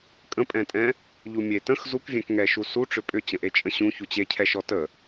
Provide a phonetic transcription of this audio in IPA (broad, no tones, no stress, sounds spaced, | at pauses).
kʼ ə̃ pʼ ɛ̃ tʼ ɛ̃ | ʎ u mʲ e t ə̃ x z u k vʲ ɛ̃ k ŋ ɛ ʃ u s u ʈ͡ʂ ʏ pʼ ʏ t͡ɕ ə̃ ʔ e t͡ʃʼ ə̃ ɕ ũ ç u t͡ɕ e cʰ ɛ ʃ ɔ t ə